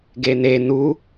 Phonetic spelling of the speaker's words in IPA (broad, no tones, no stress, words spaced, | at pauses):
ɡene nu